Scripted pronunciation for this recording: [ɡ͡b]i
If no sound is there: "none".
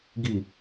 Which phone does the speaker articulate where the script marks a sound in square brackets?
ɡ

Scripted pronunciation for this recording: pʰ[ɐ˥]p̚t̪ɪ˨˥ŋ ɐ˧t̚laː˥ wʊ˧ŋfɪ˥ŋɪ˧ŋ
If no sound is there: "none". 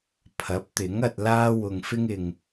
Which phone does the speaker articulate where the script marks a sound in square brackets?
ɐ˨˥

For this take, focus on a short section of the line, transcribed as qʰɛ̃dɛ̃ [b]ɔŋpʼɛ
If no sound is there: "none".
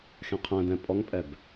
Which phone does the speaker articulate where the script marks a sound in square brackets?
pʼ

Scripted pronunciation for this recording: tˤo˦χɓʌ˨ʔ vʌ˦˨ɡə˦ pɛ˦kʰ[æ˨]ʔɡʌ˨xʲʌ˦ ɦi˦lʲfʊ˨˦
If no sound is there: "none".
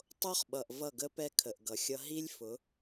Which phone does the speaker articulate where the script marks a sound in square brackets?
ə˨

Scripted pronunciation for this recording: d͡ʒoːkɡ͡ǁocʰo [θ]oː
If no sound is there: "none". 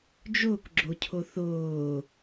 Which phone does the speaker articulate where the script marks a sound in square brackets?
θ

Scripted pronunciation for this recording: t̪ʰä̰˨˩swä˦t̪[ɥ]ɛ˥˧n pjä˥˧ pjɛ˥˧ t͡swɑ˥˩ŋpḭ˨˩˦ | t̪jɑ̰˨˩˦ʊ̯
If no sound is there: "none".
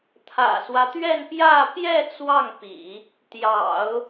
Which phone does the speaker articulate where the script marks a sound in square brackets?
ɥ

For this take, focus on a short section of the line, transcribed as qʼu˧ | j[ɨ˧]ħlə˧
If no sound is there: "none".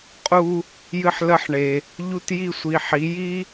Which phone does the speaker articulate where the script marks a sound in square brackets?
ɨ˧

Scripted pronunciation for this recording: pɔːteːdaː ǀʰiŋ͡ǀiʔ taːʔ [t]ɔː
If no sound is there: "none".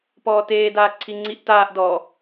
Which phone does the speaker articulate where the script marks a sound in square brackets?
d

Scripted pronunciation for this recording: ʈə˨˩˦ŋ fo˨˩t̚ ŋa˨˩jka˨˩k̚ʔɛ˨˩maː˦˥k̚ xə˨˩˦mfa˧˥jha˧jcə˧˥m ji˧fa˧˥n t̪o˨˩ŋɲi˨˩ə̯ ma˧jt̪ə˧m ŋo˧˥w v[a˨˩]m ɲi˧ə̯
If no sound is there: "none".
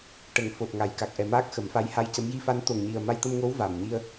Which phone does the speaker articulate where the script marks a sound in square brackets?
a˨˩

